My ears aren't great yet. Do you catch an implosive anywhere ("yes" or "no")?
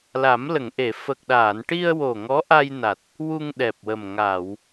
yes